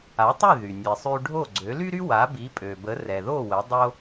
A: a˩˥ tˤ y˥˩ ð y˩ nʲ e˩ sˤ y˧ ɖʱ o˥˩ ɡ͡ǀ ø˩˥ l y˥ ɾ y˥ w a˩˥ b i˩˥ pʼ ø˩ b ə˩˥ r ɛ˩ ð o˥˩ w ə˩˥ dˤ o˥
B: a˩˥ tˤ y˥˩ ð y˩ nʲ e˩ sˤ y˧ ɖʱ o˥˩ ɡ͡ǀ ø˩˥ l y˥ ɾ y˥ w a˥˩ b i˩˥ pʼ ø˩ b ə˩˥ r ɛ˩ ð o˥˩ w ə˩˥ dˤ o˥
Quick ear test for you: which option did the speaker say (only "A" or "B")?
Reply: A